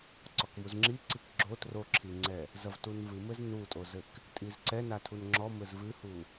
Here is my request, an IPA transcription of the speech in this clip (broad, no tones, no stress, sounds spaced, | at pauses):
ǀ ɔ k m u z ŋ͡ǁ i ǀ i k ɡ͡ǁ o t r o ǁʰ i ŋ͡ǀ ɛ | z ɐ v t u n v ɨ m ɘ z n u tʼ o z ɘ k | tʼ i z ǀ ɛ n a tʰ u n ŋ͡ǁ ɔ m ɘ z v ɨ h u